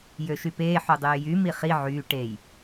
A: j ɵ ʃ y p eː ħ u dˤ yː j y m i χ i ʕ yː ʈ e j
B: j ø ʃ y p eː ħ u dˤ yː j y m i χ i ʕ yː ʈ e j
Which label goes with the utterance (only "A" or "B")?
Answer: B